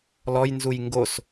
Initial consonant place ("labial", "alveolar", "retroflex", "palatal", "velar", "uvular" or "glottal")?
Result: alveolar